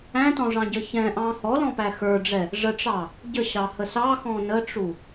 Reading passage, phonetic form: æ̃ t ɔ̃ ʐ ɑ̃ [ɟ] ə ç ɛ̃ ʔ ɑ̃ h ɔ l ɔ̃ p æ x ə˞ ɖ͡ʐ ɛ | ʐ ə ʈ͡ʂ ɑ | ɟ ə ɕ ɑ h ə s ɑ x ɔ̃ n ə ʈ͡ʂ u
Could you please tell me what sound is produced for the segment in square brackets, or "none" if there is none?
ɟ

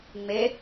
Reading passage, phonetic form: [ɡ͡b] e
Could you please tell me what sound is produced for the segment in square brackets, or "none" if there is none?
ŋ͡m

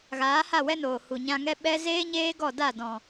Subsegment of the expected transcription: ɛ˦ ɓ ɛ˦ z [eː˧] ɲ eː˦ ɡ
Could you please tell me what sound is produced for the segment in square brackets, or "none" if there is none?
eː˦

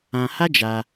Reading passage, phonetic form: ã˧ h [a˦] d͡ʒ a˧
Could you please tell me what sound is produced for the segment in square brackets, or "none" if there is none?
a˦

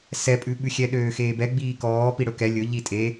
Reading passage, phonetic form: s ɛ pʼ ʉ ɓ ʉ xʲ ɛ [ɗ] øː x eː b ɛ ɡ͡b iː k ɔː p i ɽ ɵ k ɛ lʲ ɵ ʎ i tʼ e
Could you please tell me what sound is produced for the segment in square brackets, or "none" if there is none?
ɗ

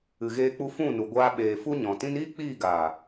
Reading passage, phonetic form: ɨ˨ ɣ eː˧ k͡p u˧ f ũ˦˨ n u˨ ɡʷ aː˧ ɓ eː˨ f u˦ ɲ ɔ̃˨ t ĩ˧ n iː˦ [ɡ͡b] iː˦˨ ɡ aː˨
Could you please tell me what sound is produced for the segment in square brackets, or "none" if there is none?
k͡p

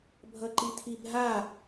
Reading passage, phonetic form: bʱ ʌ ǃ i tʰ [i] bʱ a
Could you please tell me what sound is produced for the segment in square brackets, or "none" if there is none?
i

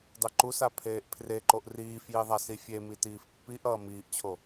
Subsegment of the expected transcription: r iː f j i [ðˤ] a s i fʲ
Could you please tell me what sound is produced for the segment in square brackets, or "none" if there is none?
ðˤ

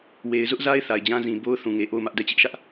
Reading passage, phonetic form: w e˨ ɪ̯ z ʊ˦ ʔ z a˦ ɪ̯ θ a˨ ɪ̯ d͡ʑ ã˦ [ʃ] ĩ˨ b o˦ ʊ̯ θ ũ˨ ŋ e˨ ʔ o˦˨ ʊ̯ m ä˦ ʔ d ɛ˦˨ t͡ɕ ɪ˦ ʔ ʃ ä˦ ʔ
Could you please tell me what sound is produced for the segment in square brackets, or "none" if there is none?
z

